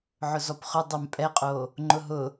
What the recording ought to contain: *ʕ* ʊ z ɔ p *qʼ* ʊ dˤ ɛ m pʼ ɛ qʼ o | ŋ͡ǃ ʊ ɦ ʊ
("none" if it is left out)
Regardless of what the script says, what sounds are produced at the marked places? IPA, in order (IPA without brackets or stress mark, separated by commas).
ʕ, χ